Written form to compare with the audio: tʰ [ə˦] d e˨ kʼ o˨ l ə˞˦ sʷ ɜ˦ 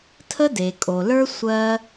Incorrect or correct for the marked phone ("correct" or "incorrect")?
correct